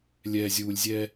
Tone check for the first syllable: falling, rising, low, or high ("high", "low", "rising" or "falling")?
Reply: low